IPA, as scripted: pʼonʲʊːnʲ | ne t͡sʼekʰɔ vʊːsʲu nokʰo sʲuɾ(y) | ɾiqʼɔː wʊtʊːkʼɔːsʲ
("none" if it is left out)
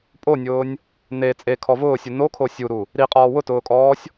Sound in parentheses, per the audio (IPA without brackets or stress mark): u